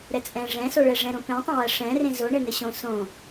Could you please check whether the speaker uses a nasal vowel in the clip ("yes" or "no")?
yes